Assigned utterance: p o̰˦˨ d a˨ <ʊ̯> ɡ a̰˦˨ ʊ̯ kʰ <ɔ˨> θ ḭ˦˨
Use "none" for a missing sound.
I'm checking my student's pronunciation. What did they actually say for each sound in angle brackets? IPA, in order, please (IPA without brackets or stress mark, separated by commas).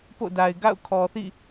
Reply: ɪ̯, ɔ˨